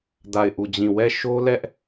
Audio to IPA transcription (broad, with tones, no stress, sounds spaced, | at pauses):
d a˦˨ ɪ̯ ʔ u˦˨ d͡ʑ ĩ˦˨ w ɛ˦˨ ʃ o˦ l ɛ˦ ʔ